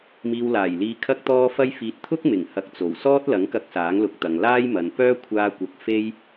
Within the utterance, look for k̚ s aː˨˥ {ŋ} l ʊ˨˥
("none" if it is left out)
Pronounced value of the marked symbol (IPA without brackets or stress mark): ŋ